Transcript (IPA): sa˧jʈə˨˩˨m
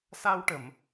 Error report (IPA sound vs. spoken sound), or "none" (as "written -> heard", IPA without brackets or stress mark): j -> w